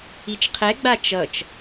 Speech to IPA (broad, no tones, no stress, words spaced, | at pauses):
it͡ʃqʰɛɡ͡ba t͡ʃʌt͡ʃ